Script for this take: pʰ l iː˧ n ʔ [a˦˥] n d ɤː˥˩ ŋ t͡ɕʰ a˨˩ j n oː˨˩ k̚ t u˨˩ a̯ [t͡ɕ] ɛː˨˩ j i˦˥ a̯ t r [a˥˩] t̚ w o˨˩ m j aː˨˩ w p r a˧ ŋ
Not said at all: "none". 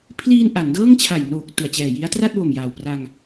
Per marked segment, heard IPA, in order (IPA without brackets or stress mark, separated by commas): a˩˦, t͡ɕ, a˥˩